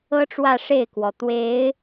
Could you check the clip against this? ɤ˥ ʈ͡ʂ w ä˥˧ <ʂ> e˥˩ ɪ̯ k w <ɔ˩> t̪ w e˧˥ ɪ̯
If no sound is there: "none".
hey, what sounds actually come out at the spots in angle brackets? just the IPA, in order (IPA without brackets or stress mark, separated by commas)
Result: ʂ, ɔ˩